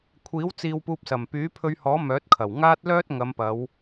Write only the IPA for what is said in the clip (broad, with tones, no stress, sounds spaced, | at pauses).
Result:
kʷʰ iː˨˥ w t͡s iː˧ w p uː˧ p̚ s ɐ˨˩ m p yː˨˥ pʰ ɵ˧ ɥ h ɔː˨˥ m œː˨˥ t̚ kʰ ɐ˨˩ w ŋ aː˥ t̚ l œː˥ t̚ ŋ ɐ˨˧ m p ɐ˨˧ w